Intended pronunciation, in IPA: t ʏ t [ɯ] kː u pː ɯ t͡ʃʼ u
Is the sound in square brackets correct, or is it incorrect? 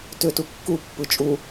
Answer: incorrect